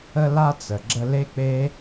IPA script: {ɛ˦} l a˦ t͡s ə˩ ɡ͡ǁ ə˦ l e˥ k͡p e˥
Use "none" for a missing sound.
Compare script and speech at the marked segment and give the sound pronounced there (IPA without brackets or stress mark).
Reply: ə˦